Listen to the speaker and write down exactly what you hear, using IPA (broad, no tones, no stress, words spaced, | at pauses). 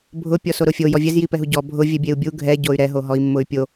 bʱʊ pʲɔsoɾʊfʲo jɔvʲɛz jipɛɦuɟɔ bʱʊ vʲɛbʲeu̯bʲu ɡʱɛ ɟoy̯ɾɛ ɦoɦɔi̯mːʊy̯pʲo